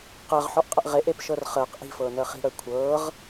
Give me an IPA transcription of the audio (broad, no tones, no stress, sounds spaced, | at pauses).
q əː ʁ ħ ɔ ʔ qʼ ə ʔ ʁ e ʔ e p ʃ ɤ r χ əː q ʔ i̤ f ɤː n əː χ i̤ ɽ əː kʷʰ ɤː ʁ